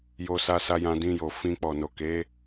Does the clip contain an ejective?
no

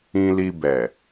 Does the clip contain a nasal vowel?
yes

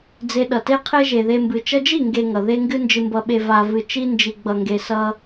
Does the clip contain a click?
no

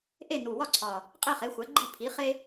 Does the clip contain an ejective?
yes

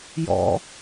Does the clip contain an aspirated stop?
no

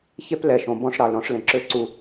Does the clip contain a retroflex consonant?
yes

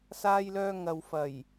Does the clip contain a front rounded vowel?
yes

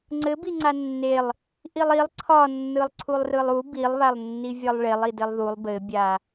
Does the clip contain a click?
yes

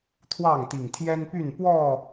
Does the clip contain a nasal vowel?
no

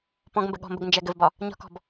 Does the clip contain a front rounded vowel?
no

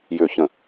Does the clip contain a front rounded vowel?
yes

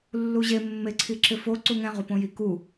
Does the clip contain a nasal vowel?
yes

